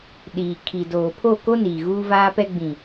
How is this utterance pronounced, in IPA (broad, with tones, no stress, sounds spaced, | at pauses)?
ɗ iː˨ kʰ i˨ d oː˨ pʰ o˦˨ k o˦ n i˨ ɣ uː˦ v aː˦ p ɛ˦ ɡ͡b ĩ˨